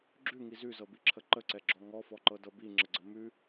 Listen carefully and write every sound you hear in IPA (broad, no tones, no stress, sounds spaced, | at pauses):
ɡ͡ǁ ʉ ŋ i z ʉ z ɤ b i ǁʰ ə ǃ ə ǀ ɛ ɡ͡ǁ ɔ ŋ ɔ f ɔ ǃ ɤ d ɤ b i ŋ͡ǁ ə ɡ͡ǀ ə m ʉ